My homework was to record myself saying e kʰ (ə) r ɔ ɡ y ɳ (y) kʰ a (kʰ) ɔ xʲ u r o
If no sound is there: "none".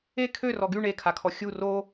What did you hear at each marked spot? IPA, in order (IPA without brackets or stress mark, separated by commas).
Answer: ø, e, kʰ